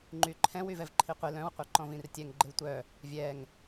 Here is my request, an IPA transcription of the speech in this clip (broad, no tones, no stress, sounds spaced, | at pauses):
ŋ͡ǃ y ǃʰ ɛ̃ w y v ɛ v ǃʰ i qʷ ɪ l œ̃ w qʷ œ ǃ ɔ̃ v ĩ r tʲ ɛ ŋ ɡ͡ǃ ɪ w tʷ œ | vʲ ɛ ŋ